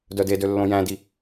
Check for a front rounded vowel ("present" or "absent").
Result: present